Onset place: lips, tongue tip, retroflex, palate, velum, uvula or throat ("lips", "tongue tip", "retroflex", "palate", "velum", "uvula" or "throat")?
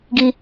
velum